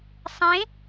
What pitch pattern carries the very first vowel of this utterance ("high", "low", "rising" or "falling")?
rising